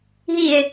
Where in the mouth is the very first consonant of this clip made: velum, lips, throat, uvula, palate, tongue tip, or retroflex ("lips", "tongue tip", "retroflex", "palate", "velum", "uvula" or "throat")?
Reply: throat